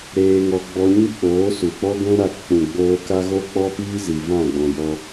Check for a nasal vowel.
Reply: present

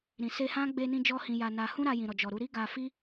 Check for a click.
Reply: absent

